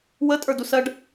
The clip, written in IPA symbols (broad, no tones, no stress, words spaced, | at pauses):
wətʼə˞dusɜɖ